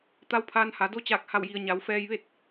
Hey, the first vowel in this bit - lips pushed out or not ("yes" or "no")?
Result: no